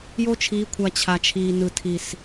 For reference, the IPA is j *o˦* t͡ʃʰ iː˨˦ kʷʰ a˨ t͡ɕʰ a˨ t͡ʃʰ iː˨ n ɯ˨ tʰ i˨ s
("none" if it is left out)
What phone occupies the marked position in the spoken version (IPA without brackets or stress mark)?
o˦